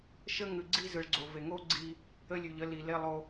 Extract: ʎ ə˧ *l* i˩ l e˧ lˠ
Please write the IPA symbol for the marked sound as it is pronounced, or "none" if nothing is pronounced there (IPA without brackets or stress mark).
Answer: l